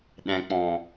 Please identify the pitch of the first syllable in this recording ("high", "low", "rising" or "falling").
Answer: low